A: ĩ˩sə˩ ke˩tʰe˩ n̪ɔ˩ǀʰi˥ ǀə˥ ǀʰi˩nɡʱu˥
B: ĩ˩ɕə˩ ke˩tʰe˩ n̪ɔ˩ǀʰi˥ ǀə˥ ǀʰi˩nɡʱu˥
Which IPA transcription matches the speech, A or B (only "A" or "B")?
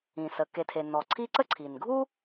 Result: A